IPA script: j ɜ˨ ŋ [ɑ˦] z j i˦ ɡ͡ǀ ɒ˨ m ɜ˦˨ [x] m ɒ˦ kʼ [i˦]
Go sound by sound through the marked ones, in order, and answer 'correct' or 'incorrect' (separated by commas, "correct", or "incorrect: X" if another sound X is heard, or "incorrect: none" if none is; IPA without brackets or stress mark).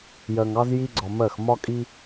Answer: correct, correct, correct